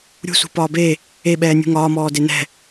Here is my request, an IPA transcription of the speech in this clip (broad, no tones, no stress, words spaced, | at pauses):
ɾʲṳsṳ pɒːbe | eɓɛː nʲṳŋɒːmɔː denɛ̤